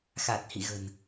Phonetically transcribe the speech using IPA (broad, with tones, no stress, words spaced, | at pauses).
xa˨˩t̚hḭ˧˨ɣə̤˨˩n